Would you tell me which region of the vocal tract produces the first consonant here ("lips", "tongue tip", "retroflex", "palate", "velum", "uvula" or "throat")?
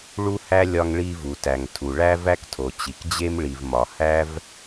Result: retroflex